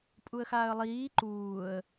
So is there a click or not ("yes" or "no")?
yes